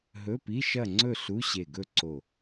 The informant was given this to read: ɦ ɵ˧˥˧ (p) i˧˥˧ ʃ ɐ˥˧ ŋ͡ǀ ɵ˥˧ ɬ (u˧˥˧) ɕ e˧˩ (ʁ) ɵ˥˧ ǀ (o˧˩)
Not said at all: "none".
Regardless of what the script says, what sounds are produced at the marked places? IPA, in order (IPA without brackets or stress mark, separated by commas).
p, u˧˥˧, ɡ, o˧˩